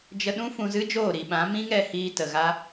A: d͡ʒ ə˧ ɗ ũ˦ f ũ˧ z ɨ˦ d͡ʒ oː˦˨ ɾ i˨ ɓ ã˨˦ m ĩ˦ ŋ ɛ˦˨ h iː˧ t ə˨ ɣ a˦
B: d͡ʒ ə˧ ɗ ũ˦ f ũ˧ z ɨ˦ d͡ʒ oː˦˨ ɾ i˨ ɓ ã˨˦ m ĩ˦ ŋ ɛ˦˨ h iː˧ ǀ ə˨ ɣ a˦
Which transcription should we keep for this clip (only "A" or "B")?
A